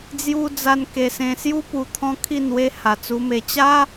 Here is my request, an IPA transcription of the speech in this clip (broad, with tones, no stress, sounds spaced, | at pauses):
d͡z j u˧ d͡z a˧ n k e˧ s ẽ˧ s j u˦ p u˧ t̪ʰ ɔ̃˦ kʰ i˥˧ n w e˦ h a˨˩ t͡s u˧ m e˧ t͡ɕ a˦